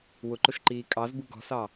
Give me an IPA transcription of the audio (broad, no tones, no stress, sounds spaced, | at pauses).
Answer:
w ʊ ǃ ʊ ʃ ǃ iː kʼ ɑ z b u ɡ ɔ̤ s ɑ